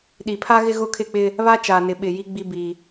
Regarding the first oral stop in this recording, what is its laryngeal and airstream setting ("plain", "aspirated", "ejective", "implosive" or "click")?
implosive